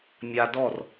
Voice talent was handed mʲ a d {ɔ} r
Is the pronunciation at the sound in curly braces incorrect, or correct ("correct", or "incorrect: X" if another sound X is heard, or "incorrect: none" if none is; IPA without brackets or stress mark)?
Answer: correct